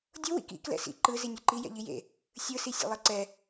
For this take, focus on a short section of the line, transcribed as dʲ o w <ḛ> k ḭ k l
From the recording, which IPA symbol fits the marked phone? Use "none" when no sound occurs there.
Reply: ḭ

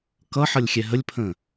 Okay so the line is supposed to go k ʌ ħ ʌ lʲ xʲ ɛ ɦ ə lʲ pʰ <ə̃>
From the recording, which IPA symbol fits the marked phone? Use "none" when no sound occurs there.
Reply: ə̃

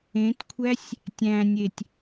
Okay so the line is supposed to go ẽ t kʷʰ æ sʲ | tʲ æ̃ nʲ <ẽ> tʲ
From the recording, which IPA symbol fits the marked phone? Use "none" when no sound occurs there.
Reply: e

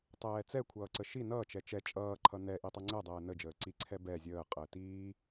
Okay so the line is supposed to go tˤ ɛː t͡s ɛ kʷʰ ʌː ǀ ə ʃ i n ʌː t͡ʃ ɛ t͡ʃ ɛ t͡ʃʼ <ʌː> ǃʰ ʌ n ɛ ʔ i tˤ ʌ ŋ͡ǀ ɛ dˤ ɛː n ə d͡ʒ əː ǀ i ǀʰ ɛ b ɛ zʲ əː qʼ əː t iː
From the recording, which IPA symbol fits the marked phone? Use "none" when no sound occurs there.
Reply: ʌː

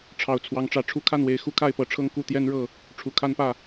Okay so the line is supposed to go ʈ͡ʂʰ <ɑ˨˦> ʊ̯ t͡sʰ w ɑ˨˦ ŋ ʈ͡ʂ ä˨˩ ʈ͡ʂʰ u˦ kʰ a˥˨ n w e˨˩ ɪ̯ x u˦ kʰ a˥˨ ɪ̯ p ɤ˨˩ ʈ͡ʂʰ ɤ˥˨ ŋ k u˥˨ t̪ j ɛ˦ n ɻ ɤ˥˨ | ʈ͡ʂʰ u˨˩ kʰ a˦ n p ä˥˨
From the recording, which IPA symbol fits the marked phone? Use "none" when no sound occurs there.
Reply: ɑ˨˩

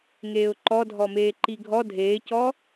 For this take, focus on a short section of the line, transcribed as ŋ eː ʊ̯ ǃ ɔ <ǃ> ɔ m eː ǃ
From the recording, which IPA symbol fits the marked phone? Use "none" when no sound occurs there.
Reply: dʱ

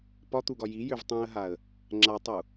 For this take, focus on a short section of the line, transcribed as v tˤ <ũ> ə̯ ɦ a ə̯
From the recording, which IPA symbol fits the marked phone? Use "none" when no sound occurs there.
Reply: ũ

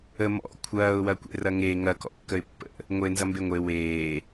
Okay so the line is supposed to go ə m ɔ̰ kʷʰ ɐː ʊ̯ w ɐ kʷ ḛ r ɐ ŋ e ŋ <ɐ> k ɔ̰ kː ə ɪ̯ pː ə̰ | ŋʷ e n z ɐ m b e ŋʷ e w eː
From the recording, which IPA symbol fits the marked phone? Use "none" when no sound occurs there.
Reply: ɐ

